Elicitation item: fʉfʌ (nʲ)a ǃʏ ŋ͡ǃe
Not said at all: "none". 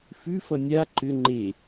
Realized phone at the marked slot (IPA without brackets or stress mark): nʲ